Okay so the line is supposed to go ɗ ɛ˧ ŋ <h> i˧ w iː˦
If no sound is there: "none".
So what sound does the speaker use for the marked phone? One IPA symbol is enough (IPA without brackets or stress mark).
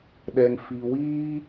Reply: f